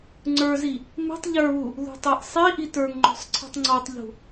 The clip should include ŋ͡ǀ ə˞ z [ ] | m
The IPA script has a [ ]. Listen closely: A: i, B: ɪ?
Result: A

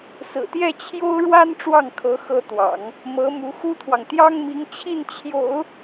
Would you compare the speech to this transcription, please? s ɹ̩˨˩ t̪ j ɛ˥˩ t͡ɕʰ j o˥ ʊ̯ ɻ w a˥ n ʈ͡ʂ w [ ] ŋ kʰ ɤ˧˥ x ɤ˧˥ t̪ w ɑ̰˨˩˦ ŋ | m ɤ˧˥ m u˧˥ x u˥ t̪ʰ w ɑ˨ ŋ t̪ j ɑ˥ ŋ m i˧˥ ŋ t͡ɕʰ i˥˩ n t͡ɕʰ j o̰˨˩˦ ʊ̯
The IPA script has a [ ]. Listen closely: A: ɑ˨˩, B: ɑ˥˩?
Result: B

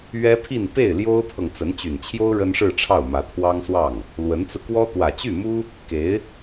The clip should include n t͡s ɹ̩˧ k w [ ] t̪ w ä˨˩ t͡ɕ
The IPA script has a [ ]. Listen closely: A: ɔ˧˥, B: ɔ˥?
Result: B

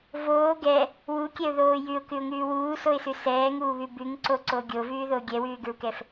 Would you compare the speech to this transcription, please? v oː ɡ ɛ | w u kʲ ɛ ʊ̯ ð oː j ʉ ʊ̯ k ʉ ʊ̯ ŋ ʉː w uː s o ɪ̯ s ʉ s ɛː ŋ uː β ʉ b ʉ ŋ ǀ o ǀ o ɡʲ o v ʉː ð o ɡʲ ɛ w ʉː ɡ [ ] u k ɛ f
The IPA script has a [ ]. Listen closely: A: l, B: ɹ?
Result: B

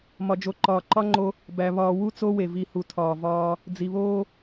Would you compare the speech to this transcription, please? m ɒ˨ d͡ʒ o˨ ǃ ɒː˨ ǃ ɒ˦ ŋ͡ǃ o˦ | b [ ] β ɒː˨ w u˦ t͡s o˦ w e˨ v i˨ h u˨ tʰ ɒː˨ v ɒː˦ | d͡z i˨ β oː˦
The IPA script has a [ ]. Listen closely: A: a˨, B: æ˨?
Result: B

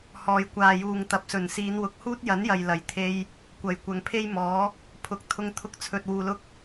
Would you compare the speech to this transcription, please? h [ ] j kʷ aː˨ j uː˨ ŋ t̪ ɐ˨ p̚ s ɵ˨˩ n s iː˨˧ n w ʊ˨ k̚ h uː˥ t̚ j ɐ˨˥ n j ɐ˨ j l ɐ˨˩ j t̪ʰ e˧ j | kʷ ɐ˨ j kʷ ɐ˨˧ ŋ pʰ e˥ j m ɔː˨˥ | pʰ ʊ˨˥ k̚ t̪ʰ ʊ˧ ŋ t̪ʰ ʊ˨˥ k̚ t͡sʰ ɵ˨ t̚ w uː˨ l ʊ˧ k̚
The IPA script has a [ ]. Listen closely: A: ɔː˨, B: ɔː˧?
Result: A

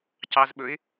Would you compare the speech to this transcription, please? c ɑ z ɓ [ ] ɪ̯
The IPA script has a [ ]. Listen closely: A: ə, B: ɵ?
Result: B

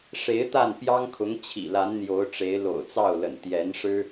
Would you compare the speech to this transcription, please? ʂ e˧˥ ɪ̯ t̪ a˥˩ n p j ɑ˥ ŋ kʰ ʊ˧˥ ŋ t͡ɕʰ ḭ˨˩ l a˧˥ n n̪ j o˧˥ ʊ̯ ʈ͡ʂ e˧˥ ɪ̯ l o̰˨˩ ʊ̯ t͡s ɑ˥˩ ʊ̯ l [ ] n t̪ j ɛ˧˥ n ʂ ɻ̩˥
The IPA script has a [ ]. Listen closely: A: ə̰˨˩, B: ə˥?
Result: A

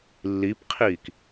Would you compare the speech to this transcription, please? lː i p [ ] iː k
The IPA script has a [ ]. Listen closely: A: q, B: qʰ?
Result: B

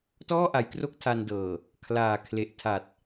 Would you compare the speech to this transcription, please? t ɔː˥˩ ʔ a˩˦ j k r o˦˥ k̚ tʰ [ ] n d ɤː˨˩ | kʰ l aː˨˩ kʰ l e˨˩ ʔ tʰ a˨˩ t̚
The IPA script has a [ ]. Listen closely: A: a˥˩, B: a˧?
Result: B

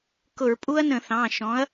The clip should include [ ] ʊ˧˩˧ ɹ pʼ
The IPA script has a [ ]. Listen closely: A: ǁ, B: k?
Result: B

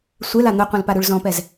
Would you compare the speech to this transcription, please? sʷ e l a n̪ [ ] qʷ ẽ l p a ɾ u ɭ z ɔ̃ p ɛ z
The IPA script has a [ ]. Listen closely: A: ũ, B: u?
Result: B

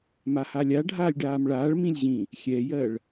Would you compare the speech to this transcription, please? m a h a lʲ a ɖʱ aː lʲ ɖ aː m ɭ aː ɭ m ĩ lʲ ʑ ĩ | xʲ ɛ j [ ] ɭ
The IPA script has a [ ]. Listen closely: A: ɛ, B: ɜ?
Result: B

